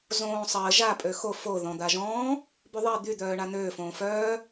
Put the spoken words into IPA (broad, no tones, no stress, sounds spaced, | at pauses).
z õː sˤ əː ʒ a pʼ ø x o f o ð ɔ̃ d̪ a ʒ ɔ̃ː | b y ðˤ i d̪ y d̪ œː ɳ a n̪ øː f õː f œː